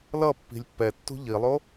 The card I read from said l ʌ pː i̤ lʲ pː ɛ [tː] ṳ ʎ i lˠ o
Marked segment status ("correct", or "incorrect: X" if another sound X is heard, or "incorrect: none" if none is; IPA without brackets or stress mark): correct